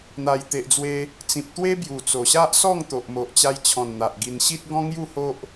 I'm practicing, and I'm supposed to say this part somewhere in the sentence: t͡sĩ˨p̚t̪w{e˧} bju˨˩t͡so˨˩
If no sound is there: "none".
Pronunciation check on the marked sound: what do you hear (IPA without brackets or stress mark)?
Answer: e˦